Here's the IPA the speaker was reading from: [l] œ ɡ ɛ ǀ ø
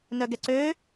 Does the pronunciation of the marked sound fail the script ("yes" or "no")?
yes